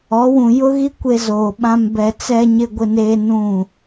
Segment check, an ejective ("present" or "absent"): absent